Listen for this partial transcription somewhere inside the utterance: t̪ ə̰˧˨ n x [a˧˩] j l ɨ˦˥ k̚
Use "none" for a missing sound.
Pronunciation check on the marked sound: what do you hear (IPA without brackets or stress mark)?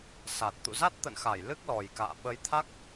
a˧˩